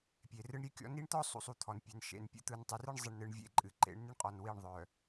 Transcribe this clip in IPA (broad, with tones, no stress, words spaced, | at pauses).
pʲe˨rɯ˦ɳɾʲe˦kʲɔ̰˦ ni˦ɳt̪ɔ˦ sˤṵ˨sˤu˨ t̪ʰɔ˨npʲœ˨n ʃḛ˨npʲṵ˦ t̪ɯ˨ntˤɯ˨rɨ˦ɳ zˤɨ˨ɳnɯ˨ɳ vʲḛ˦˨ǃʼɨ˨ǃḛ˨˦ɳ nɨ˦ɳqʼɔ˨n wi˦˨ɳ ðˤœ˨